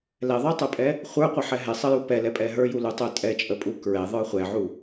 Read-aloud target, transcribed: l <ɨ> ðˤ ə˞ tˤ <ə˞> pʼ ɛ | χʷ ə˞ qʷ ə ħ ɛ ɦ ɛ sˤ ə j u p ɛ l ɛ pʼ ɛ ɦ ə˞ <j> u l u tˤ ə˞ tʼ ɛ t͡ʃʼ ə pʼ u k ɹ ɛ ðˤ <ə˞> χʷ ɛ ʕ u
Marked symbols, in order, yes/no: no, yes, yes, yes

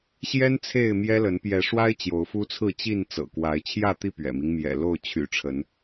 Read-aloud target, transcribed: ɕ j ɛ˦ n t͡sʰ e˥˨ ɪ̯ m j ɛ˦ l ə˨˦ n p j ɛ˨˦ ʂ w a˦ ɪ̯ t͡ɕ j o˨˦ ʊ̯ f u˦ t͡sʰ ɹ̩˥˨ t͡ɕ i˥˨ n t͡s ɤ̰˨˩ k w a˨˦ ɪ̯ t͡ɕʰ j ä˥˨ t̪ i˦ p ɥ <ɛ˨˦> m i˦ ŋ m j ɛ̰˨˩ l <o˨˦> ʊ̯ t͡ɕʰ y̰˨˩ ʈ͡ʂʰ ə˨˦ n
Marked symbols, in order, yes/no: no, no

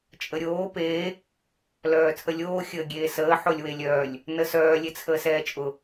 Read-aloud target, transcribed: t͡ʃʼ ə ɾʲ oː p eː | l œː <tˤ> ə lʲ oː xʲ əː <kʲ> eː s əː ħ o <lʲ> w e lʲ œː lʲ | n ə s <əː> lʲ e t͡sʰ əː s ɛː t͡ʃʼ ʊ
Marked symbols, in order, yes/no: no, no, yes, no

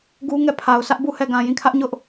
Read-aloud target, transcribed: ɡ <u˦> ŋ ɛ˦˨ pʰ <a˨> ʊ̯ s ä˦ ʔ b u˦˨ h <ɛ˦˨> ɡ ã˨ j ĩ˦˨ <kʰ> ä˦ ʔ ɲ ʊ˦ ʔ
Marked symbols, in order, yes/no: yes, yes, yes, yes

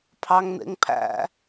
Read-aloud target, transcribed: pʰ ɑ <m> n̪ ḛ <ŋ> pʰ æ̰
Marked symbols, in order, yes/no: no, yes

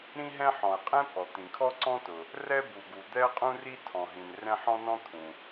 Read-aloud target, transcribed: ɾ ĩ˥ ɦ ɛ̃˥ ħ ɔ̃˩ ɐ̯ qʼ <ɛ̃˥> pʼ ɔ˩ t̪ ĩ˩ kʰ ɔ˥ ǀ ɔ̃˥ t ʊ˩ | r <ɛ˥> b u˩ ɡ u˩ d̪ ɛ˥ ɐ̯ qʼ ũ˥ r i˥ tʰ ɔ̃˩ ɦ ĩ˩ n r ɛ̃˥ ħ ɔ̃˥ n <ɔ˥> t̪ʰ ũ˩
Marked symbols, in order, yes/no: yes, yes, no

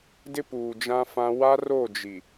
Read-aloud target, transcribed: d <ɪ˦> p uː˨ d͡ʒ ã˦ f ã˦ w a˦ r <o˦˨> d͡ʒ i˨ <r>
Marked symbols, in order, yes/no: yes, yes, no

